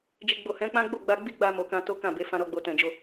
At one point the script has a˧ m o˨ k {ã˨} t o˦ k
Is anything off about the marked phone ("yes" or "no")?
yes